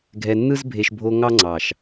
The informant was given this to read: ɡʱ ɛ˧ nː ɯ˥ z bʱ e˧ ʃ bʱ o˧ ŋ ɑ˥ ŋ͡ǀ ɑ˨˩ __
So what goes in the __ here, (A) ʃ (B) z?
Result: A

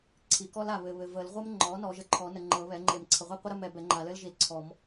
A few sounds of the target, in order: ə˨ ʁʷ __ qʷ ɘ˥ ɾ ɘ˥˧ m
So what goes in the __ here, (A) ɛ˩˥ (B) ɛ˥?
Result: B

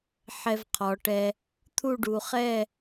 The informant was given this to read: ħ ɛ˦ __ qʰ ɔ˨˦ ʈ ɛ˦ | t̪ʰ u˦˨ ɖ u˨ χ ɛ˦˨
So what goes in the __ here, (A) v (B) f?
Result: A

